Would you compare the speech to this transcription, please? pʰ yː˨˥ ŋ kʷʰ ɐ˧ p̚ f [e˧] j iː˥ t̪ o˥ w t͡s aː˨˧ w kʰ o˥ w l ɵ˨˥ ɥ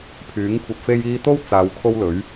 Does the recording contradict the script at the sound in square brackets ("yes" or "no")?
yes